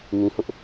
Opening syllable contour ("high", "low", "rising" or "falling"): low